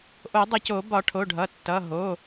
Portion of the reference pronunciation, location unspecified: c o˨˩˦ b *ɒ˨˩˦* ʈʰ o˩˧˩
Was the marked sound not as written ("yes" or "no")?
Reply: no